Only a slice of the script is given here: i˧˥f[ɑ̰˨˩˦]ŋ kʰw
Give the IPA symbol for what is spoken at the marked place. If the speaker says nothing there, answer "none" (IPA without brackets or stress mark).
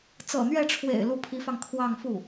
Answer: ɑ˧